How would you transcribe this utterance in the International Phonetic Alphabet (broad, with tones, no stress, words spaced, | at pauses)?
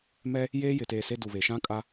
mɛ˦ | jeː˦jɪ˨teː˨ se˦du˨βe˨ ʃã˦kʼa˦